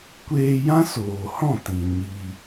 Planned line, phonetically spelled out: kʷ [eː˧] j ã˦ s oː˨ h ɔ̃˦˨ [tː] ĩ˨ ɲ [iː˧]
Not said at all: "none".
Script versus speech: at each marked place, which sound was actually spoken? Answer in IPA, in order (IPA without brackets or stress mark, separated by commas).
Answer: eː˧, t, i˧